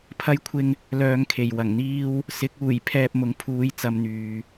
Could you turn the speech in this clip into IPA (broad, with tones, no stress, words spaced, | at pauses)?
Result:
pʰɐ˥jkʷʰɪ˥ŋ | lœː˧ŋkʰe˨˩j wɐ˨˩ŋn̪iː˥w | sɪ˨˥k̚uː˨˩j pʰɛː˧p̚mʊ˨˥ŋpʰuː˨˧j t͡sɐ˨˧mn̪yː˨